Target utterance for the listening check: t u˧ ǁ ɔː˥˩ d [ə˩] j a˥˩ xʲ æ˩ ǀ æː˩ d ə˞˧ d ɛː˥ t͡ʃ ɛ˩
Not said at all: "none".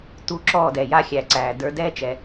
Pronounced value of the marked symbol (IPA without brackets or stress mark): ɛ˩